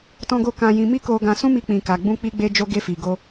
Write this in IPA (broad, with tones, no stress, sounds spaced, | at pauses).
t ɔ̃˧ ɡ o˧ k ã˧ j ĩ˧ m i˦ k o˧ ɡ ã˧ s ũ˦ m i˧ k͡p ĩ˨ k a˨ ɡ͡b ũ˧ k͡p i˧ ɡ͡b e˧ d͡ʒ o˧ ɡ e˧ f i˨ ɡ o˧